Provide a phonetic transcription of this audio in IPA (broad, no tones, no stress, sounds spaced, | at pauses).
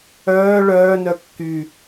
œː ɭ œː n œ kː y